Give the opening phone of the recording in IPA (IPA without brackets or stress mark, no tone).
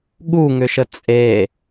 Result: ɠ